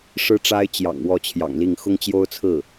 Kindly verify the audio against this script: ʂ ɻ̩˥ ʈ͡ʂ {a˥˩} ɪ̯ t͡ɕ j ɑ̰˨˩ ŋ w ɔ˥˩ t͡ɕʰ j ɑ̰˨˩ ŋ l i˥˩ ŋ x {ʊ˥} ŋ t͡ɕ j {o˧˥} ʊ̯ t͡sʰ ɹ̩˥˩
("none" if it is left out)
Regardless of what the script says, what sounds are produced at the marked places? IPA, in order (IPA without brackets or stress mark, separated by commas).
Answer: a˥, ʊ˥, o˥